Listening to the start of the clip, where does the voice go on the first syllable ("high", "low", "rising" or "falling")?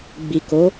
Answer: low